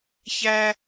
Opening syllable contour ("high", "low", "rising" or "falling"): high